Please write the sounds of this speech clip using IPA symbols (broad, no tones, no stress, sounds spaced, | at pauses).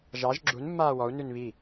ʒ ɑ ʒ ɡ͡ǁ u n mː aː w ɔ u̯ n ʉ n β i